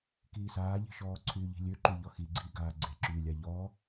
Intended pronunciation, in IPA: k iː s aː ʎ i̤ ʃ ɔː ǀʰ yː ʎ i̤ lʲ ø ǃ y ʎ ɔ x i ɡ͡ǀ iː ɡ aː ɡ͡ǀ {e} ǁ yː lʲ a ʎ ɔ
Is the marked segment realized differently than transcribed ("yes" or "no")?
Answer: no